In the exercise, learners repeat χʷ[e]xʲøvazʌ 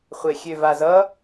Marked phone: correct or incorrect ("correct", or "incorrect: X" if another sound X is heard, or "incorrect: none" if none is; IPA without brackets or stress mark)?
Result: correct